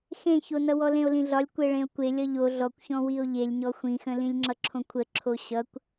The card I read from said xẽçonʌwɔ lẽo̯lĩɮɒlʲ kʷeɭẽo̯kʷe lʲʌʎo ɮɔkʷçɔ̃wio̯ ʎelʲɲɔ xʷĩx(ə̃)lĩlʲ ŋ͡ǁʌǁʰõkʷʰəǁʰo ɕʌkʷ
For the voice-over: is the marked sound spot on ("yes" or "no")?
yes